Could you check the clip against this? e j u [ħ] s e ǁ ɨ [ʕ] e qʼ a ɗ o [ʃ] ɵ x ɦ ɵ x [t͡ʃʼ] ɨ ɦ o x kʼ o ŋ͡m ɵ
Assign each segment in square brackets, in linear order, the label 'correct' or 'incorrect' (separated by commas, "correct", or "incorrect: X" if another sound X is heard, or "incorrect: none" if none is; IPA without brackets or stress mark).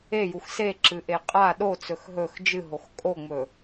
incorrect: x, incorrect: ʔ, incorrect: t͡s, incorrect: d͡ʒ